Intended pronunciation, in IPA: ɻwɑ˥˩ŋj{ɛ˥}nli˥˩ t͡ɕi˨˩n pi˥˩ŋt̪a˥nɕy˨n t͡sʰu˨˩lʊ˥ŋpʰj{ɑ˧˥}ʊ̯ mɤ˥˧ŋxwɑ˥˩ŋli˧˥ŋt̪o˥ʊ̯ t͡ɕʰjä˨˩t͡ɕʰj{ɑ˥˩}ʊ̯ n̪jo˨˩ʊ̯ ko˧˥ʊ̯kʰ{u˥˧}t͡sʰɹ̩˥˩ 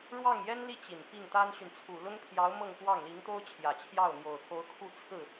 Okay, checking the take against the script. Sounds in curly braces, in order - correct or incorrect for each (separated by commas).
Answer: correct, correct, correct, correct